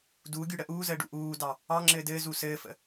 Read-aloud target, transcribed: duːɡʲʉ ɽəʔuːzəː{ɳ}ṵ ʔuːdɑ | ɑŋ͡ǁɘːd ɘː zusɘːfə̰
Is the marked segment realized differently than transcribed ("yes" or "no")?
yes